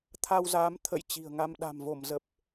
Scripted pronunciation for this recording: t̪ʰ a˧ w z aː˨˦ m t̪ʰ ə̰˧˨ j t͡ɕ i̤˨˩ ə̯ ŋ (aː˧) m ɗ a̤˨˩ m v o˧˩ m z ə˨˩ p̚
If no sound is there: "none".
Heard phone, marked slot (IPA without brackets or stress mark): a˧